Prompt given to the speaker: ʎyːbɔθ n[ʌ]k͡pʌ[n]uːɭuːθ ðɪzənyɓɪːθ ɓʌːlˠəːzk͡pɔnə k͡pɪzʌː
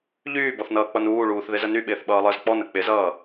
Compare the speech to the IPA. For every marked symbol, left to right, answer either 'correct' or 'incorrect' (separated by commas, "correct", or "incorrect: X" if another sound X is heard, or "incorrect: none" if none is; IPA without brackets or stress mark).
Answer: incorrect: ʌː, correct